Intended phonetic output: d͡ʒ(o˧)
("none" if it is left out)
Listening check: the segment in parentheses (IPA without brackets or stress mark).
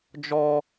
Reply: ɔ˧